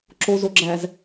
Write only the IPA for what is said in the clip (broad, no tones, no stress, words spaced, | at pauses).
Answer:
ǁozoɡ͡ǁæz